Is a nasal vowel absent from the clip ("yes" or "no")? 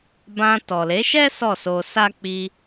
no